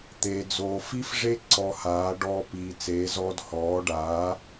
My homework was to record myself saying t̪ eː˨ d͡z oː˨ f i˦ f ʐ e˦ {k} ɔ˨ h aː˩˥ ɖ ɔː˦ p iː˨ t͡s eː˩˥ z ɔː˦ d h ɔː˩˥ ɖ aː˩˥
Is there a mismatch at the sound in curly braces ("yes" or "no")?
yes